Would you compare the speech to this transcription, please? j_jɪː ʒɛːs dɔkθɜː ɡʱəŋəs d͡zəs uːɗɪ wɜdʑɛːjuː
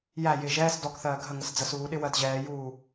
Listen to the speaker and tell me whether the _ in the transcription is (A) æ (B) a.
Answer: A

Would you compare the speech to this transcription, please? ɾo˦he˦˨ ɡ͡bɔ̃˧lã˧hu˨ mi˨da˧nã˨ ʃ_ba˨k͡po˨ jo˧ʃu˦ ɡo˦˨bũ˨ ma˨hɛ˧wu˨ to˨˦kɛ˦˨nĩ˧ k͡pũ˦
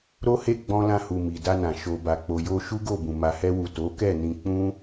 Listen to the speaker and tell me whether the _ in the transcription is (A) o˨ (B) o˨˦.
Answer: A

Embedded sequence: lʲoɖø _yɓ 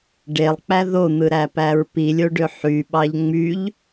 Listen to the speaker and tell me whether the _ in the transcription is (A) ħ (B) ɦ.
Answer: A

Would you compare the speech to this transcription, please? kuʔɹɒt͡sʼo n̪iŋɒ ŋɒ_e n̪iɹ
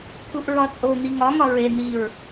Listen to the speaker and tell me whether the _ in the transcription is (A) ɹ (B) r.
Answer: A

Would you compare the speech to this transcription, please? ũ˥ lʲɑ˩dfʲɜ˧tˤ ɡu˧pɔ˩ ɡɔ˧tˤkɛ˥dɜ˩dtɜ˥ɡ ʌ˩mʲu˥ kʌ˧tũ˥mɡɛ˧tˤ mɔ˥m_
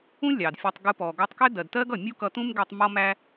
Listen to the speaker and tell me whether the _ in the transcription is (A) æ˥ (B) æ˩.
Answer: A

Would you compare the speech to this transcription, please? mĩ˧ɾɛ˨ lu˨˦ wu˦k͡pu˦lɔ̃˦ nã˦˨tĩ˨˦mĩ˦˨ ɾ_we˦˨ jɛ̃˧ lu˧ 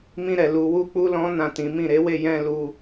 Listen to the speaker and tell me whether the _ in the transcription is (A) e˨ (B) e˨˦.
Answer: B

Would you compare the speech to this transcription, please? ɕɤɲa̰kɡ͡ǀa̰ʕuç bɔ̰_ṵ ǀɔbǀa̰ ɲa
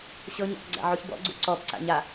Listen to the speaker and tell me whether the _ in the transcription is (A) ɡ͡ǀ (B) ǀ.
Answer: A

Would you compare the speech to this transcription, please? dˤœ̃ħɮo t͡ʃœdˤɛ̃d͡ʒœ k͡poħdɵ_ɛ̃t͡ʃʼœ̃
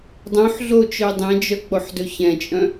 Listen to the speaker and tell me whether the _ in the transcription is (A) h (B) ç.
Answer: B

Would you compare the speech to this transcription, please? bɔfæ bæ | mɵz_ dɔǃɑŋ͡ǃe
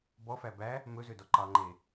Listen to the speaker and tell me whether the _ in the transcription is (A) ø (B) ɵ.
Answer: A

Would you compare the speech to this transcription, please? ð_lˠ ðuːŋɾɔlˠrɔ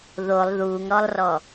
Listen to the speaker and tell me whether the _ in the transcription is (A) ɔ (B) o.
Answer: B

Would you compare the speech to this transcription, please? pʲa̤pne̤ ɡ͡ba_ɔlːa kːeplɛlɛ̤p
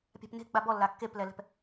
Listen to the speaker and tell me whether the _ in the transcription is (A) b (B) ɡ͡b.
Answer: A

